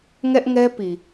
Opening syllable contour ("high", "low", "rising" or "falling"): high